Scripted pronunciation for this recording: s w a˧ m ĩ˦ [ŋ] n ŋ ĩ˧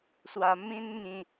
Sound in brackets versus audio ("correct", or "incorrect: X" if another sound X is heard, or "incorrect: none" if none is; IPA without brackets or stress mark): incorrect: none